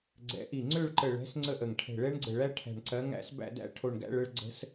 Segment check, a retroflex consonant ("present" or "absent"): present